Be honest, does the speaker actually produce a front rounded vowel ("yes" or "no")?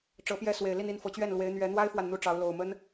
no